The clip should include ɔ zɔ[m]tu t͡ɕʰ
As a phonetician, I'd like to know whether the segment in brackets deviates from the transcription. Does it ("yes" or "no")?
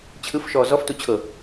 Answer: yes